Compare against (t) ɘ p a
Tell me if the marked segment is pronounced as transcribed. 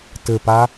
yes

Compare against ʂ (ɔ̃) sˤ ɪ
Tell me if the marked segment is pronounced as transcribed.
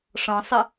yes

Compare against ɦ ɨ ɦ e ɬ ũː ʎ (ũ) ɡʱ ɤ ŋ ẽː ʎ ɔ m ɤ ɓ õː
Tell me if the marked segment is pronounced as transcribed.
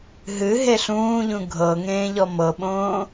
yes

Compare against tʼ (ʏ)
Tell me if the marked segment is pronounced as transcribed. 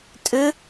yes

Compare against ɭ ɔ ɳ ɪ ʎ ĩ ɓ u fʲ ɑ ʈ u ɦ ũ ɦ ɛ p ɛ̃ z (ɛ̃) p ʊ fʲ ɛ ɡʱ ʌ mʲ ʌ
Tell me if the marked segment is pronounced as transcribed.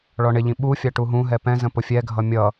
no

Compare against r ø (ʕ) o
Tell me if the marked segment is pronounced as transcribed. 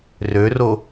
no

